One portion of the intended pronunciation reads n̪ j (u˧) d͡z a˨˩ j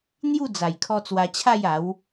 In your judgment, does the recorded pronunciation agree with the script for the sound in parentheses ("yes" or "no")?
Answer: no